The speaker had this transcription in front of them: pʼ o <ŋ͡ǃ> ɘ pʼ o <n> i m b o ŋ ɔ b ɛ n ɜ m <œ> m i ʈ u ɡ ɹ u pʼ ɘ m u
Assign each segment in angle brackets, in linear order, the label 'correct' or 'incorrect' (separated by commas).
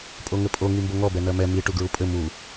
incorrect, incorrect, incorrect